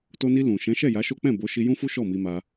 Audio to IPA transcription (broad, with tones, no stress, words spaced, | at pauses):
to˧ni˧ lũ˨ ʃɛ̃˨˦ʃɛ˦˨ ja˨˦ʃo˦k͡pɛ̃˦˨ bo˨˦ʃi˧jũ˦fu˦ ʃɔ˦˨mi˧ma˧